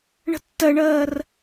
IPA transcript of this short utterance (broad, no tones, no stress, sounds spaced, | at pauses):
ɳ ə̤ tː ɜ ɳ ɜː r